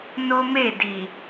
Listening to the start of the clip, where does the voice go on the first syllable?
high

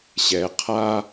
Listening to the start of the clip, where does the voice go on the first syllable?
low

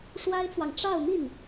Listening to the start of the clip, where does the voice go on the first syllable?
high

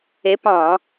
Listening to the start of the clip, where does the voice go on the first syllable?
rising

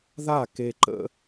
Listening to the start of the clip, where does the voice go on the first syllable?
falling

